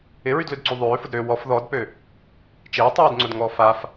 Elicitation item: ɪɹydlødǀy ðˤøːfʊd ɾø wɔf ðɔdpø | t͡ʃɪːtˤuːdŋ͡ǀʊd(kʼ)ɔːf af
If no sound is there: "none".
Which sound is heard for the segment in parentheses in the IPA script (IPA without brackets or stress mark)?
ŋ